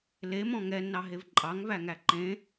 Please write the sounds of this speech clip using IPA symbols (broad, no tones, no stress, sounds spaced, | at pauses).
l e m ɔ̃ ŋ ɛ nː ɑ ɦ e v ǃʼ ɑ ŋ v æ ŋ æ ǃ ẽ